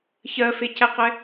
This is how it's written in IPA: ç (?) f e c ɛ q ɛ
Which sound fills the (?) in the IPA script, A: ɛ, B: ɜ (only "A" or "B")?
B